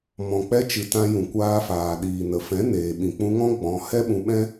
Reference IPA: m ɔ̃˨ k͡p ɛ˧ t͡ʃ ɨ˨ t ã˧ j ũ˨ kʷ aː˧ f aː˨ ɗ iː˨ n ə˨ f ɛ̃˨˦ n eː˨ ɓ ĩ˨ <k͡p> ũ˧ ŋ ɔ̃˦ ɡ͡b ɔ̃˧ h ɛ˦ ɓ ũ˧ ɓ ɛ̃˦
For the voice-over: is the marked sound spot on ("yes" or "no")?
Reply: yes